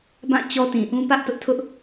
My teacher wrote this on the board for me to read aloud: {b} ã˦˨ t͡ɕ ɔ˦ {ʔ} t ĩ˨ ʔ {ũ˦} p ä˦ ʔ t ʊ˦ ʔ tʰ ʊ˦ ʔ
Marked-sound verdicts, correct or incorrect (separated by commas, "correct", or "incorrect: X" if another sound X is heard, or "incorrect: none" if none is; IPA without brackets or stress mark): correct, incorrect: none, correct